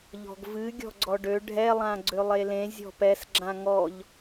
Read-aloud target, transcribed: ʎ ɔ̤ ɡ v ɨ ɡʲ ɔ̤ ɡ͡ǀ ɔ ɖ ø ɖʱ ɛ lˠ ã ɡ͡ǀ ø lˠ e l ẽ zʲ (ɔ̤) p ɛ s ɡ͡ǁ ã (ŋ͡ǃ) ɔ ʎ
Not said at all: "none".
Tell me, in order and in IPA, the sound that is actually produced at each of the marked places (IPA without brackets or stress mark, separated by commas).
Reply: ɔ̤, ŋ